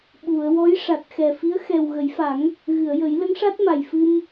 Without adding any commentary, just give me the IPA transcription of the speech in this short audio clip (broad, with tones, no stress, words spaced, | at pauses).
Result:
ɓu˨˩˨ə̯wɔ˧˥j ʂa˨˩t̚xɛ˨˩fi˧˥ə̯ xɛ˨˩w ɣə˨˩˦jfa˨˩˦ŋ | ɣɨ˨˩˨ə̯ jə˨˩˦j lə˧˥ŋʂa˦˥t̚ma˨˩j fɨ˧m